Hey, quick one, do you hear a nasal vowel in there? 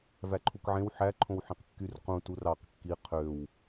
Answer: yes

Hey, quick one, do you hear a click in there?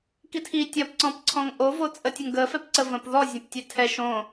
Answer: yes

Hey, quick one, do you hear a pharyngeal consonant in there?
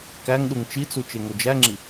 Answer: no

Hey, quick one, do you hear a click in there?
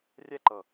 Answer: yes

